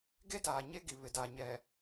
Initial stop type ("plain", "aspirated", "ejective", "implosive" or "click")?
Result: plain